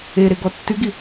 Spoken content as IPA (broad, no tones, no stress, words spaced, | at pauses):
eɾe ɡɔtːyɡi